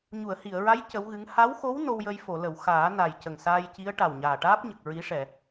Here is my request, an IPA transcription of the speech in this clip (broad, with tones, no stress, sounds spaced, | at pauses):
ɲ u˨˩˨ ə̯ h i˨˩˨ ə̯ ɹ a˧˥ j c ə˧˥ w ɣ ɨ˧˥ ŋ h a˧˥ w x o˧˥ w n o˧ w j ə˧ j f o˨˩˨ l ə˨˩˨ w x aː˨˩˦ n a˨˩ j c ə˨˩ ŋ s aː˧ j c i˧˥ ə̯ ʈ a˨˩ w ɲ aː˨˩ ʈ aː˦˥ p̚ ɲ ə˨˩ k̚ ɹ i˧˥ ʂ ɛ˨˩˨